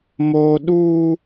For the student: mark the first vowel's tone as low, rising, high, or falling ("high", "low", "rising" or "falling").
high